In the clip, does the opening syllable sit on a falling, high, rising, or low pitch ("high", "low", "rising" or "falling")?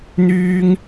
high